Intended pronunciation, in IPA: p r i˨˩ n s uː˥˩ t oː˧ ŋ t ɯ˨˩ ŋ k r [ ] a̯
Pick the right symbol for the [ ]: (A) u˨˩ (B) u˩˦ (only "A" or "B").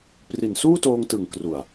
A